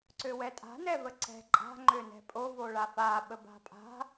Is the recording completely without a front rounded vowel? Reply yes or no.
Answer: no